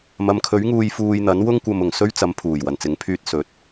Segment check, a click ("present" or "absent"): absent